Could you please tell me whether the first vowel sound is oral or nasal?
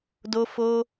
oral